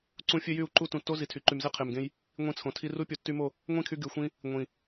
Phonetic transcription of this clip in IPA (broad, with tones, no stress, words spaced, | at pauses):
ǀũ˦ fʲø˦jy˦˨u̯ǃu˦ tũ˨tːo˦ zi˨tʰy˨ǃy˨mze˦ qʰe˨mɡẽ˧j | ŋʷĩ˧t͡sʰõ˨tʰi˧ ru˦ pʲo˨tːy˧mo˦˨ | ŋʷĩ˦˨kʰy˧ ɡy˨xʷĩ˧ | ŋʷĩ˨